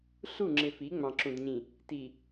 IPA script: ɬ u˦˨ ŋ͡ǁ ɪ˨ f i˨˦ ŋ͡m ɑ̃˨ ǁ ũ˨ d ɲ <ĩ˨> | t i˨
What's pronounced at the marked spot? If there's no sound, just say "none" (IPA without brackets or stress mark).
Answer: ĩ˨